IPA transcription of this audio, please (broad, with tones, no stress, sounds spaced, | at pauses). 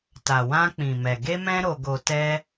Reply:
t a˨ w ã˧ k͡p ĩ˨ m ɛ˨ ɡ e˧ m ɛ̃˧ ɾ o˨ ɡ o˨ t ɛ˧